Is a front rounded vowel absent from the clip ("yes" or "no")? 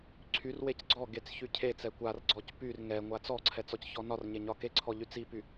no